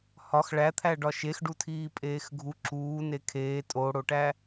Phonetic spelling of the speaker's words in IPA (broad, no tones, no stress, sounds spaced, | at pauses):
h ɒ x ɭ æ t̪ʰ æ ɖ ɒ ʃ e x ɖ u tʰ iː pʼ eː x ɡʱ u ǁ uː n e kʰ eː tʼ o ɽ o ʈ æ